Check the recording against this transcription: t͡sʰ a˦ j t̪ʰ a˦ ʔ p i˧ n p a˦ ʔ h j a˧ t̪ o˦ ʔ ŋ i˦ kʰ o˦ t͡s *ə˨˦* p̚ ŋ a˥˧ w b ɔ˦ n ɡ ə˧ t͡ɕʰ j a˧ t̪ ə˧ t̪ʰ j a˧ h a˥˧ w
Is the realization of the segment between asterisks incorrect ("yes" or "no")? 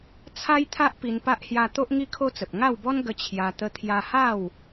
yes